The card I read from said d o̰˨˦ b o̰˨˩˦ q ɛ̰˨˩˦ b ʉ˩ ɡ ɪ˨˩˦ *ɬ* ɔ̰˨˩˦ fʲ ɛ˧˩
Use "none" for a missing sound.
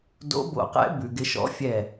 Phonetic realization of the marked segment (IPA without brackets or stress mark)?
ʃ